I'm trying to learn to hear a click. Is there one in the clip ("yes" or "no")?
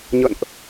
no